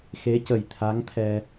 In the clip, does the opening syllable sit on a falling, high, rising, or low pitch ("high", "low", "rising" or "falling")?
rising